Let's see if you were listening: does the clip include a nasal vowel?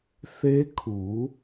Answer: no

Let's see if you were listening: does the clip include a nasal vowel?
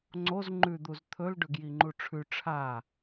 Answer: no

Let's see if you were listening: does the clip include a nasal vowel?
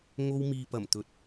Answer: no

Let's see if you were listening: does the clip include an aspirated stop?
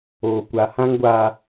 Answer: no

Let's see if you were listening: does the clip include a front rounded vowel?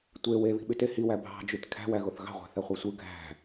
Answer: yes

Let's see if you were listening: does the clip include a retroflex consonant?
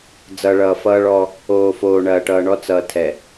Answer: yes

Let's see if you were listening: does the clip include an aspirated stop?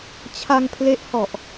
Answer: yes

